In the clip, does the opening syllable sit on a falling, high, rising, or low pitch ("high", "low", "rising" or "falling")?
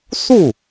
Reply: falling